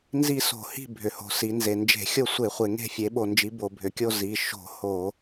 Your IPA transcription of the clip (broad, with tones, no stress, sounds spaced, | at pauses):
n z i˦˨ s o̤˧˩˧ h i̤˦˨ bʱ ʏ˩˧ h o̤˩˧ s i˩˧ n z e˨˩ n d͡ʒ e̤˧˩˧ xʲ o˦˨ sʷ e˧˩˧ χʷ e˨˩ ŋ e̤˦˨ fʲ e˩˧ ɓ o˨˩ n d͡ʒ i˩˧ b o˨˩ bʱ ʏ˩˧ kʲ o˦˨ z i˩˧ ʃ o̤˧˩˧ h o˧˩˧